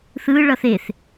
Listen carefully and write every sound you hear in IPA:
θ ɯ ɭ ʌ θ e θ

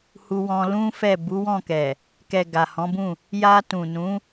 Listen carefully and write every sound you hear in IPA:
h u˧ w ɔ̃˧ l ũ˦ f ɛ˦˨ b u˨˦ w ɔ̃˦˨ k ɛ˨ | k ɛ˨ ɡ a˨ h ɔ̃˨˦ b ũ˦˨ | j a˧ t ũ˨ n ũ˨˦

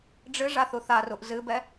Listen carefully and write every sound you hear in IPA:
ɖ͡ʐ ɨ ʐ a θ u θ a r u ʔ z ɨ b ɛ

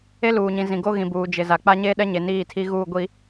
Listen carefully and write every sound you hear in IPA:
e˦ l uː˨ ɲ ĩ˨ z ĩ˨ ɡ o˦ ɣ ĩ˨ b uː˨ d͡ʒ ɪ˨ z a˨ k͡p a˦ ɲ e˦ ɗ ɛ˦ ɲ e˨ n iː˦˨ tʰ i˦ ɣ uː˦˨ ɡʷ i˦

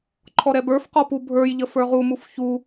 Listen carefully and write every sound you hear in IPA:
ǃʰ ɔ ɾ ɛ b ə˞ f q ɔ p u bʱ ə˞ j ʎ ə f ə˞ ʁ u m u f ç u

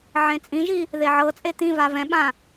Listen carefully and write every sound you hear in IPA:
ʕ ẽ t͡sʼ ĩ ʒ i | ð e ʕ ɤ t͡sʼ e t̪ ĩ v a v ɛ̃ ɓ ã

